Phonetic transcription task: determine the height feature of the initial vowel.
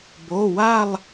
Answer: mid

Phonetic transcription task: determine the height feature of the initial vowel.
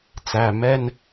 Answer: low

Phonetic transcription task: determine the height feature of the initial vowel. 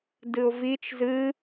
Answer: high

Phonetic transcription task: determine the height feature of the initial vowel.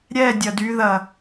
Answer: mid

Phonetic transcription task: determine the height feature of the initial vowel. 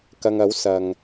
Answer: low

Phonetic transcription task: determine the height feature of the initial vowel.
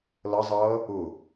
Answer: mid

